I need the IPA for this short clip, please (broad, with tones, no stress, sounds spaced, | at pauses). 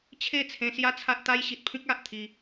t͡ɕʰ e˥˧ t͡sʰ ẽ˧ s j a˦ t͡sʰ a˦ ʔ t̪ a˦ j ɕ i˨ t̚ pʰ ĩ˦ k̚ a˨ ʔ t̪ʰ i˧